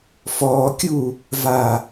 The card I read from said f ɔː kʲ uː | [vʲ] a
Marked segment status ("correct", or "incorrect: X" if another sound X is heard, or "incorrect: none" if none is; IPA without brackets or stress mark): incorrect: v